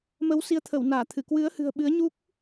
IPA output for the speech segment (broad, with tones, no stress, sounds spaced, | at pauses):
m ə˨˦ w s i˨˦ ə̯ t̪ʰ ə˧˩ w n aː˧˩ t̪ʰ ɨ˧˩ k w ɨ˨˦ ə̯ h ɨ̤˨˩ ə̯ ɓ ɨ˨˦ ə̯ ɲ u˦˥ k̚